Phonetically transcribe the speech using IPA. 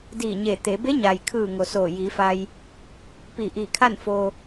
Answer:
diː˧˩ɲe˧˩t̪e˩˧ be˧˥ɲa˩jkʰɯː˧˩ ŋo˩soː˧˩jiː˩˧fa˧j | pi˧˩ʔiː˧˩kʰa˥˨n fo˧

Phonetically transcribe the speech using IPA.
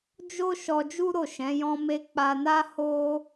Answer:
d͡ʒo˦ ʃɔ˧d͡ʒu˦ɾo˦˨ ʃɛ̃˨˦jɔ̃˦me˦ k͡pa˧na˦ ho˦

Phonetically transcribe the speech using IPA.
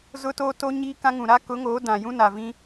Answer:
zʊ˦toː˦to˦ ɲiː˦kã˦ŋũ˨ ɾa˦kʊ˨˦ŋoː˨˦ dã˨ jũ˦na˨vĩ˦

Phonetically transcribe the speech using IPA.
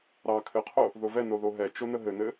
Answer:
ɾɑ kʰɘqʰo | ðovɛ noðoɦɛ t͡ʃonəɦɘnɘ

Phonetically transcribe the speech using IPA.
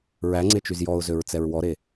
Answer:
ɹæŋ͡ǀet͡ʃyz jɔʊ̯zøɹt͡sɛɹ wɔɾe

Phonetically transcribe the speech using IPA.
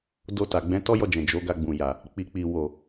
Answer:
do˧ta˨ ɡ͡bɛ̃˨˦tɔ˦jɔ˧d͡ʒɛ̃˨ d͡ʒo˨˦ɡa˧ɡ͡bũ˨ ja˨ | k͡pi˨k͡pi˨ wo˨

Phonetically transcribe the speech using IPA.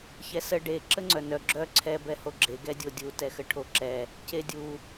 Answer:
çɛsə ɖe ǁəŋ͡ǀœnœ ɡ͡ǁœ ǀʰɛ bɛhoɡ͡ǁe ɡɛdʲodʲu tɛxəʈʰoǁɛ | cedʲu

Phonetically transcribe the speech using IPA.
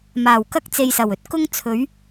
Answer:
maː˨˩wkɐ˥k̚ t͡se˧jsɐ˨˩wɵ˥t̚ kʊ˥ŋt͡sʰɵ˨˥ɥ

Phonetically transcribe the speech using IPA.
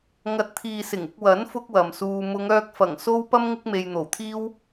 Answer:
ŋɐ˨˥t̚t̪ʰiː˨sɪ˨˩ŋ ɪ˧k̚wɐ˨˥n fʊ˥k̚wɐ˨msuː˧ mʊ˨˧ŋœː˧k̚fɐ˨˩ŋ so˥wpɐ˥m ŋɪ˥k̚me˧jn̪o˨˩wt̪ʰiː˥w

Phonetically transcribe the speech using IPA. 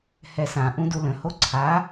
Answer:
hɛsã ʔũdulə̃ hoǀʰa

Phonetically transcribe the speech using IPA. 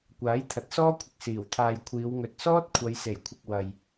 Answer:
kʷaː˨˥jt̪ʰɐ˨˥t̚sɔː˥kʷʰɪ˧k̚ siː˨˩wt̪ʰaː˨jkʷʰiː˨˧w ŋɵ˨t̚sɔː˥t̚ kʷʰɐ˨˧jse˨˩jkʷʰɪ˨k̚ wɐ˨j

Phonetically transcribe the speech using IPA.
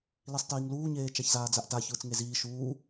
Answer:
lisˤtiːŋluːɲeː t͡ʃaçzaːd͡zaʔta çɯːt͡sŋeziː ʃuː

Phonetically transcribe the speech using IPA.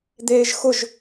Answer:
d̪eːʒxʊʒ

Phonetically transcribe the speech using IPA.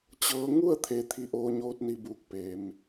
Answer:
t͡ɕɤː˧˥ ŋu˥˨ə̯ t̪ʰeː˧t̪ʰi˧˥ʔoː˧˥ ɲoː˧˥t̚ni˧buː˧˩k̚peː˩˧m

